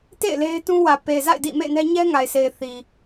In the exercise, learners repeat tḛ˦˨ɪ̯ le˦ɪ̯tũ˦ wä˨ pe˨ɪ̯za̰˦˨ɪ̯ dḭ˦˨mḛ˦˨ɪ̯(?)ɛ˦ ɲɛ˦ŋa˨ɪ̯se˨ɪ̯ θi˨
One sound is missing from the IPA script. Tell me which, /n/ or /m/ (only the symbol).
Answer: n